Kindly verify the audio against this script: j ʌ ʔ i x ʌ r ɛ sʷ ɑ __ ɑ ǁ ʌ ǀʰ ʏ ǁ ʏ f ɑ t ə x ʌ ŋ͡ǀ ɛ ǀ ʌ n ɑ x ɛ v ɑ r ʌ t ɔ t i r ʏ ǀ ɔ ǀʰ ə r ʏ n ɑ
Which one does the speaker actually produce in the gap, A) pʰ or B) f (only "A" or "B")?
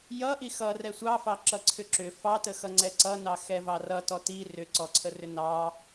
B